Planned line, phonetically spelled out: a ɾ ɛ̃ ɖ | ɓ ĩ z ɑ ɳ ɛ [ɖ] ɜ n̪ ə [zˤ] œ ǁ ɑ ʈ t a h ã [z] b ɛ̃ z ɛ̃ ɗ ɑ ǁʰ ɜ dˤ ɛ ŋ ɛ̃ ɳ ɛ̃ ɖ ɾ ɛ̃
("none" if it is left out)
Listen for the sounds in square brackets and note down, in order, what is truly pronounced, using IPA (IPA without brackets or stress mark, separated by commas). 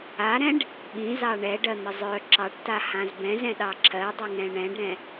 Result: ɖ, zˤ, z